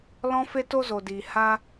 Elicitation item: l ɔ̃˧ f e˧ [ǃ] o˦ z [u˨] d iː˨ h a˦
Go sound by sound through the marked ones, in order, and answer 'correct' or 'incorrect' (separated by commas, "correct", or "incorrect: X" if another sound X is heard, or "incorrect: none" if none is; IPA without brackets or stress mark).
incorrect: t, incorrect: o˨